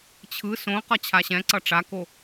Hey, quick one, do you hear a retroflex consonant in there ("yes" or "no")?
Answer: yes